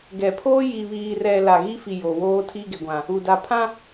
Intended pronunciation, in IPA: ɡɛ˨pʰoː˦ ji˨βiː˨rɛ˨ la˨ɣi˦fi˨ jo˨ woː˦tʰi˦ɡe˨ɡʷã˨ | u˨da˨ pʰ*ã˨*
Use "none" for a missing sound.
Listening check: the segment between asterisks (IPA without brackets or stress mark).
ã˦